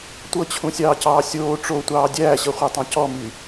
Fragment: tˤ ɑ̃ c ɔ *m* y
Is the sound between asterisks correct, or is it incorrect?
correct